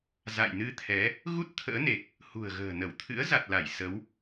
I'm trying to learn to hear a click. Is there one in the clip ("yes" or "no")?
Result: no